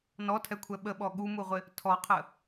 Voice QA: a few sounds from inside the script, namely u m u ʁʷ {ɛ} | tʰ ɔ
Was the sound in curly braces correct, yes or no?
no